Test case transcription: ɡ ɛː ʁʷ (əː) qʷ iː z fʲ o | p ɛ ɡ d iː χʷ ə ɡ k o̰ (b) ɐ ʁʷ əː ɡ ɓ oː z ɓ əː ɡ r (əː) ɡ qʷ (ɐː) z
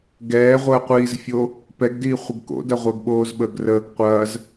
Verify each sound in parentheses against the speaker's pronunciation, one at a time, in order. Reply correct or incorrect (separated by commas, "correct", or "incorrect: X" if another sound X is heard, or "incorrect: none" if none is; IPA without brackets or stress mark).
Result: correct, incorrect: d, correct, correct